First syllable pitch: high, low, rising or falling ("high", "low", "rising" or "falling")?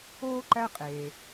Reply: high